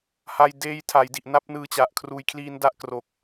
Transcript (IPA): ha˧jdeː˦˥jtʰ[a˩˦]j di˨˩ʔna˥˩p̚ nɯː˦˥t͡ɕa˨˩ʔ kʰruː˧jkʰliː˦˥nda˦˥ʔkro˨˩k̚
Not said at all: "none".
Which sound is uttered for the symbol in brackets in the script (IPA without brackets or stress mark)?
a˩˦